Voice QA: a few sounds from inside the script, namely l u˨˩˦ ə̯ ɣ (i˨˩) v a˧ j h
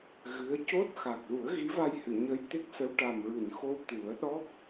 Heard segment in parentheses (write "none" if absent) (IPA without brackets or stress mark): i˧˥